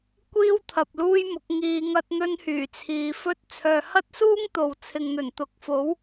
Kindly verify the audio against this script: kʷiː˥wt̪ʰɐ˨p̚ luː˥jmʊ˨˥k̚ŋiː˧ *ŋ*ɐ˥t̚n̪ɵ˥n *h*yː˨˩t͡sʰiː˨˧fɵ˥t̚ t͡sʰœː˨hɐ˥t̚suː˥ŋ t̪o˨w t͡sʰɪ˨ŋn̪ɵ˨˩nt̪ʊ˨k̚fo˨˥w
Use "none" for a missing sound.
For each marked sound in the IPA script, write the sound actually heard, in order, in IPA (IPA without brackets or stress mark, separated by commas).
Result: ŋ, h